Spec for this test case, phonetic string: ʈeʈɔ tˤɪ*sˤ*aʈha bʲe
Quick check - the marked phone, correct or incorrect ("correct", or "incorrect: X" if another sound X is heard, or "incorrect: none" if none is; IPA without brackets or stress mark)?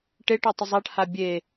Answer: incorrect: zˤ